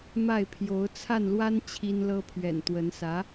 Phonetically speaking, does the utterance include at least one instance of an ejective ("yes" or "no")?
no